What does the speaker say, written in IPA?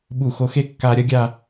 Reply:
ɓ u˧˩ x o˧ x e˥ kː a˧ ɾʲ ɐ˥ ɡʲ a˥˧

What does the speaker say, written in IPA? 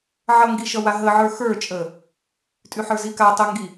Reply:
ʕ ʌ ŋ ɡ i ʃ ʌ w a ɦ ə ʕ ə˞ x ə˞ t͡ʃʼ ə | tʼ y ħ ə˞ z i k a tˤ ə ŋ ɡ i

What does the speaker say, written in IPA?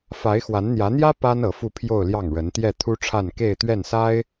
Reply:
f a˧˥ ɪ̯ x w a˧˥ n n̪ j ä˧˥ n̪ j ä˥ p a˥ n ɤ˧˥ f u˥˧ pʰ j o˥˧ ʊ̯ l j ɑ˥˩ ŋ ɻ ə˧˥ n t̪ j ɛ˥˩ t̪ʰ u˥ ʈ͡ʂʰ a˥˧ n k e˥˧ ɪ̯ t̪ ɥ ɛ˥˩ n s a˥ ɪ̯

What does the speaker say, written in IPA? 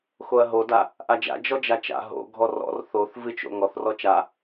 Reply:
x o ɐ̯ ɦ o d a | ʔ a d͡ʒ a̰ d͡ʒ ɔ d͡ʒ a t͡ʃ a̰ ɦ o̰ ɡʱ ɔ r ɔ̰ r θ o θ v ɨ t͡ʃ o̰ ŋ ɔ θ r ɔ t͡ʃ a

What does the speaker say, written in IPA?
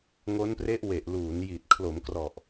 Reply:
ŋ o˦˥ n p r e˦˥ ʔ w e˨˩ ʔ l uː˩˦ n j i˨˩ t̚ kʰ l o˩˦ m k r ɔ˨˩ ʔ

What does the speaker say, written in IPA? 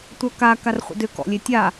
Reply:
tʷ œ k a k a r χʷ ə̰ d ʏ k ɔ̰ lʲ e tʲ a

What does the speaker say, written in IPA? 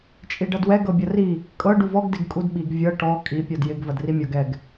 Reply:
t͡ʃʼ i ɖ ɐ d w ɛ ɡ ɤ bʲ ɐ r i | kʼ ɤ ɖ u v ɔ ɡ d ɪ ɡ kʼ u d ɓ i ɡ vʲ ɤ ʈ ɔ kʼ i pʲ ɔ d j ɪ ɡ v ɐ d r i mʲ ɔ ɡ ɛ ɡ

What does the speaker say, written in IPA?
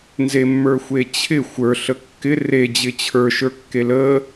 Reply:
n z e mː ə˞ xʷ e t͡ɕʰ ɪ xʷ ə˞ ɬ ə kː ɪ r e d͡ʑ ɪ t͡ɕʰ ə˞ ʃ ə˞ kː e l ə

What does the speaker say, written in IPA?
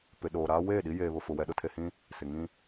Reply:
p ɪ˨ ɗ oː˨ ɾ aː˦ w eː˦˨ ɗ i˦ j eː˨ β ʊ˨ f ʊ˨ w ɛ˨ ɗ ʊ˨ tʰ e˨ h ĩ˦ | s ɪ˨ ŋ ĩ˦

